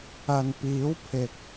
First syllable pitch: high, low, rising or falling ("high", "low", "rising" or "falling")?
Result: low